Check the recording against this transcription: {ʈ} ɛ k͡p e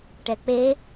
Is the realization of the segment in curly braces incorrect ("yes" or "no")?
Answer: no